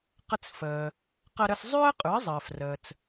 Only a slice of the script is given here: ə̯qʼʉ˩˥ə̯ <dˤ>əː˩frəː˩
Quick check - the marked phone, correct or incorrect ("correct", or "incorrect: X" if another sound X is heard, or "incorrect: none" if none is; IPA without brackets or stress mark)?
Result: incorrect: zˤ